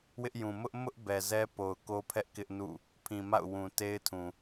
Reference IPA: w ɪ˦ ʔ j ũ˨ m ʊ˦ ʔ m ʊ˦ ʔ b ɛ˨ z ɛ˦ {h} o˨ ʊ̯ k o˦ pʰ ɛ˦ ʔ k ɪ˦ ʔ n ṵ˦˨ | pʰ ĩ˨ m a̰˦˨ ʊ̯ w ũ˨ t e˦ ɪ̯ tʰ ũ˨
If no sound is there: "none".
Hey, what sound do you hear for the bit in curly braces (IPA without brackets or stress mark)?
p